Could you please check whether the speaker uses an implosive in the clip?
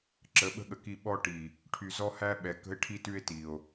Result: yes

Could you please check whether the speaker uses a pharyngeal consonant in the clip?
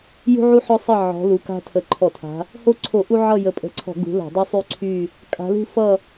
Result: yes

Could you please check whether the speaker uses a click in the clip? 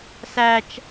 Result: no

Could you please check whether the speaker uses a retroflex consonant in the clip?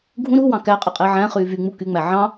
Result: no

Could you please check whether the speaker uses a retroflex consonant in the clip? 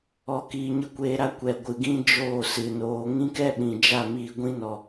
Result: no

